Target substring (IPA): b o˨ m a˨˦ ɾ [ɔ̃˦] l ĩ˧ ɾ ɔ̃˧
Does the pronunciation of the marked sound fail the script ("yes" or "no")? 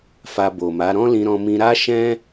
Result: no